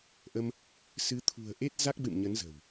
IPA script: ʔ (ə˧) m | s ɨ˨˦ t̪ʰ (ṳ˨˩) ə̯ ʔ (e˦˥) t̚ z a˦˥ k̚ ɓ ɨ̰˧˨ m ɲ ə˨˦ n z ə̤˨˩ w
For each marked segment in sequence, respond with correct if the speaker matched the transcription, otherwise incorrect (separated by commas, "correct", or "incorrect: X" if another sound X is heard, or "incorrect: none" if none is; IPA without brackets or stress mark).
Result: correct, correct, correct